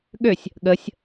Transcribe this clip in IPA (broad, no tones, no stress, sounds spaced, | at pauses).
ɠ ø sʲ | ɠ ə sʲ